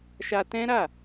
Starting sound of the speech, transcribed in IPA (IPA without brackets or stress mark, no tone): ʃ